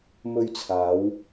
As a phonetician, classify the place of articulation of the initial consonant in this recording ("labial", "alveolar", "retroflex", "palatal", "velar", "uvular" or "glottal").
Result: labial